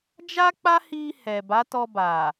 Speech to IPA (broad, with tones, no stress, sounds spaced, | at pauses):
d͡ʒ a˦ k͡p a˦ h i˧ h ɛ˨ b a˨˦ t ɔ˧ b a˨